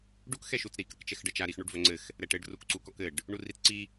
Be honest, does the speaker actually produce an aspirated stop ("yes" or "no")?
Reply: no